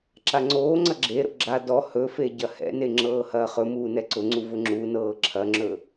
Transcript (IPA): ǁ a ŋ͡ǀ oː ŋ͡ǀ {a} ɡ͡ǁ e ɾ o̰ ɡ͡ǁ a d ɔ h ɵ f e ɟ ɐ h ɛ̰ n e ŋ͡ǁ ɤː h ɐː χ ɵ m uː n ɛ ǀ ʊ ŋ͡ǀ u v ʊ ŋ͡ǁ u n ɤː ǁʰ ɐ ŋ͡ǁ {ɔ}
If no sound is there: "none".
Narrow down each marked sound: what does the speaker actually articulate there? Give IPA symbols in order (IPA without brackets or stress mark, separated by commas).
ɐ, ɵ